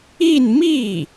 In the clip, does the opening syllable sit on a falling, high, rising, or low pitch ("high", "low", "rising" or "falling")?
falling